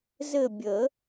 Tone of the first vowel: falling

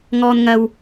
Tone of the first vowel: high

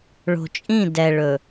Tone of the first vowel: low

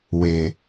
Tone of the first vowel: low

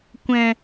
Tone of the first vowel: low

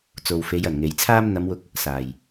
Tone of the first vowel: low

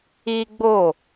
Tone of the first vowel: high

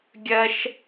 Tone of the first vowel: high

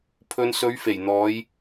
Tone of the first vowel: low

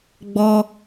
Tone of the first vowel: high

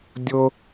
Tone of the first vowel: high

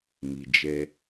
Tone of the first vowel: low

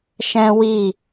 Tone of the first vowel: high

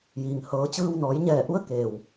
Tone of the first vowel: low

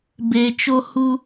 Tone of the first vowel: low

